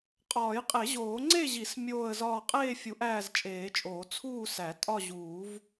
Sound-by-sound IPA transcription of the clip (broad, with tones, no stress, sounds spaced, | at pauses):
qʼ ɒː˨˩˦ j qʼ e˨˩˦ ʑ oː˨˩˦ ŋ͡ǀ e˥˧ ʑ i˨˩˦ s mʲ oː˥˧ ə̯ z ɒː˥˧ qʼ eː˥˧ fʲ u˨˩˦ ʔ æː˥˧ z t͡ʃʼ eː˨˩˦ t͡ʃʼ oː˨˩˦ t͡sʰ uː˥˧ s æ˨˩˦ tʼ ɒ˥˧ ʑ uː˨˩˦ v